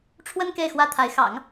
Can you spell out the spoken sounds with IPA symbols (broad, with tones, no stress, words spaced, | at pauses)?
ʈ͡ʂʰwə˥n ke˥˩ɪ̯xwä˥t̪ʰa˧˥ɪ̯ xɑ̰˨˩˦ŋ